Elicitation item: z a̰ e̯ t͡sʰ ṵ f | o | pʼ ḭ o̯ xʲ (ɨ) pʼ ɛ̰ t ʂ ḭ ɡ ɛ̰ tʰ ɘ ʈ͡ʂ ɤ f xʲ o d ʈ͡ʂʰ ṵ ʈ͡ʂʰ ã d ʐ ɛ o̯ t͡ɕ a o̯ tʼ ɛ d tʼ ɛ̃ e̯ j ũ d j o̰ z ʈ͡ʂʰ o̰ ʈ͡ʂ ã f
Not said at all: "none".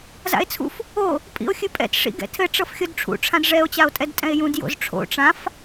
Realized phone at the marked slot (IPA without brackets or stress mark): ɨ